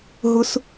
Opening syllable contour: high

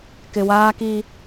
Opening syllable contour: low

